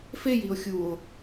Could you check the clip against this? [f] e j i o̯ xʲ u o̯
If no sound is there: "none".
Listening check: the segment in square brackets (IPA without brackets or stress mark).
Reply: f